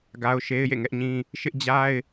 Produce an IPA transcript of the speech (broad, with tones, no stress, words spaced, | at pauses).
ɡa˦ʊ̯ ʃe˦ɪ̯jḛ˦˨ŋɛ˦ʔɲĩ˦ | ʃɪ˦ʔd͡ʑa˦ɪ̯